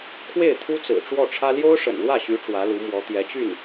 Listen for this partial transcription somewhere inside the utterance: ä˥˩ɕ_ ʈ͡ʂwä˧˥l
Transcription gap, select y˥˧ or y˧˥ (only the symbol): y˧˥